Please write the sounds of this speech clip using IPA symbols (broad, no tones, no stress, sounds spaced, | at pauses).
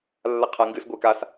lː a qʰ a ŋ ɡ ɨ s ɡʷ e k a s